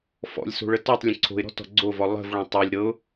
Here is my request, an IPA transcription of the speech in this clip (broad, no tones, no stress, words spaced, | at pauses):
fɔ̰lʲso̤ɭə tɔtˤ lʲə̃ǀʰo̤ɪ̯ɾɔ̤ tɔ̤ɡ͡ǀovɔ lˠə̤vɭɔ̃ tˤɤlʲ ɾɤʊ̯